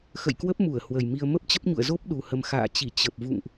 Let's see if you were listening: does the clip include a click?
no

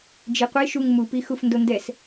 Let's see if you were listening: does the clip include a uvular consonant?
yes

